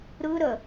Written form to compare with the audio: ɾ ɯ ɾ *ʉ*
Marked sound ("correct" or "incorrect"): incorrect